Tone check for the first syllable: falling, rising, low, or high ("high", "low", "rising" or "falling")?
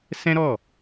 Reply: high